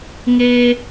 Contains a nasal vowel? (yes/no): no